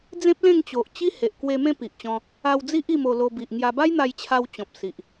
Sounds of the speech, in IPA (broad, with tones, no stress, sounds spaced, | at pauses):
d͡z ẽ˦ p̚ l ẽ˥˧ ŋ t͡ɕ o˨ ʔ t͡ɕ i˦ h e˨ ʔ k w e˧ m ẽ˥˧ p i˨ ʔ t͡ɕ ɔ̃˧ | a˧ w d͡z i˦ ʔ i˥˧ m o˧ l o˧ b i˨ ʔ ŋ j a˧ b a˦ j n̪ a˧ j t͡ɕʰ a˧ w t͡ɕ ɔ̃˨ p̚ s i˨ ʔ